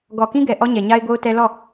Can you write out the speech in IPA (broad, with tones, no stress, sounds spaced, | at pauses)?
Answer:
ɡ ɔ˨ k ĩ˦ ɡ ɛ˨ ʔ ɔ˦ ɲ ɛ˨ ɲ a˦ ɪ̯ ɡ o˦ ʊ̯ t ɛ˦ l ɔ˦˨